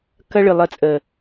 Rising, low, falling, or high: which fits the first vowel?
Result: high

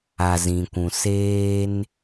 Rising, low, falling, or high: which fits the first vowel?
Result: low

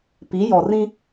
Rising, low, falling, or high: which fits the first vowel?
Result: rising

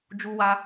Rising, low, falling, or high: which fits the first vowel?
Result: high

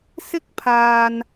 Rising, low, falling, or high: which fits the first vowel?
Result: high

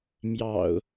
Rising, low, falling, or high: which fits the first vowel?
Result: low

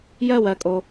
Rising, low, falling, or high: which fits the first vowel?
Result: falling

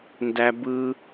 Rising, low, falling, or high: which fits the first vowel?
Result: high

